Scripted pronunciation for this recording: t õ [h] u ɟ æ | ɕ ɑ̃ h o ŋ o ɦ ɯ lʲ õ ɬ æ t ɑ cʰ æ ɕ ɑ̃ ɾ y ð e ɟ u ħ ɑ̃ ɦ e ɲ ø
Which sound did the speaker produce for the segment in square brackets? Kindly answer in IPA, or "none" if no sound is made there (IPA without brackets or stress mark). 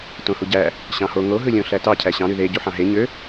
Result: h